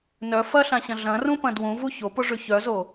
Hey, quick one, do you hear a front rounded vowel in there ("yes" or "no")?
yes